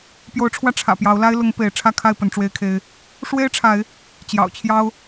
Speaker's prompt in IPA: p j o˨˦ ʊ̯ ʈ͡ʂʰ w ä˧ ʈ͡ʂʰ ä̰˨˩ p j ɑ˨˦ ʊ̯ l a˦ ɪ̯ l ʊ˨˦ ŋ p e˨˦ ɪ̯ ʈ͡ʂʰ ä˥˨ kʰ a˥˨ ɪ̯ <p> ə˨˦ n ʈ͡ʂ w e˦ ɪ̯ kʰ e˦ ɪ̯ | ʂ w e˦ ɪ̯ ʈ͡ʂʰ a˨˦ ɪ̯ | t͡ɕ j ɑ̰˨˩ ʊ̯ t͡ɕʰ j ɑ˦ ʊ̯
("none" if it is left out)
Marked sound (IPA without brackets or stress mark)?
p